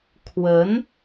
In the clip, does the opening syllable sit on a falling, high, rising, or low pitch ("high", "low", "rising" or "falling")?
rising